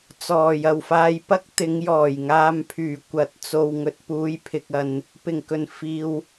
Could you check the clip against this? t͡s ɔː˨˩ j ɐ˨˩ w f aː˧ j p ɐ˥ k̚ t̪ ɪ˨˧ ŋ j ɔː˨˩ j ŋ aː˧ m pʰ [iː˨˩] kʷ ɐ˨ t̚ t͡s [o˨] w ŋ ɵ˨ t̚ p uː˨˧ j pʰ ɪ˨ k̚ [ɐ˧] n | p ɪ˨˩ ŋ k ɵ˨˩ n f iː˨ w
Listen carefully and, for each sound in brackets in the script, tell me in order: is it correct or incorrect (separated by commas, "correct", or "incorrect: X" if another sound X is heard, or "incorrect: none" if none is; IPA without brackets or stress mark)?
incorrect: yː˨˩, correct, incorrect: ɐ˨